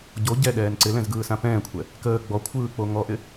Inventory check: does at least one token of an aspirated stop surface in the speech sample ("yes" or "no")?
yes